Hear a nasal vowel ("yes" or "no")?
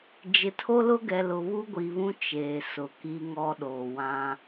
yes